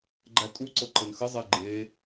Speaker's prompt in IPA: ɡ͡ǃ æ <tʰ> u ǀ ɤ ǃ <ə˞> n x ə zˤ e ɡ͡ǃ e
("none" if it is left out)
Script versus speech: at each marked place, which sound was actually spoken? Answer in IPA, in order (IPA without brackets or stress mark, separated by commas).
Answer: tʼ, ə